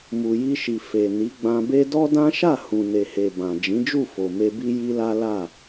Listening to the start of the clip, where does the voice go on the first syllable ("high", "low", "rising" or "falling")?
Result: low